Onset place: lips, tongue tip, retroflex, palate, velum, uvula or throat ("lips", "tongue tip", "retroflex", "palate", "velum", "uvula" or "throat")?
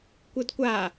velum